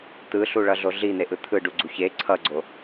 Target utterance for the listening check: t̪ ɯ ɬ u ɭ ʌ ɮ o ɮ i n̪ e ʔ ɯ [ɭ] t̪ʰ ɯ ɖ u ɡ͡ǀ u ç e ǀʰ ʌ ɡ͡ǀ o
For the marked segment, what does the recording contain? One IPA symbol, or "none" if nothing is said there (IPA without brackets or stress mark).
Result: none